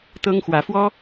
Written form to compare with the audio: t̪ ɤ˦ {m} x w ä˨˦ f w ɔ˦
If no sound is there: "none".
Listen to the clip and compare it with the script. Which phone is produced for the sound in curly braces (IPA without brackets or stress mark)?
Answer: ŋ